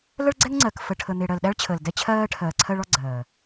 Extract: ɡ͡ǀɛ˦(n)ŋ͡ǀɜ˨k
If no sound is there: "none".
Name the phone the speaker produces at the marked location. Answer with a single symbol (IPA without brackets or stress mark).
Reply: ŋ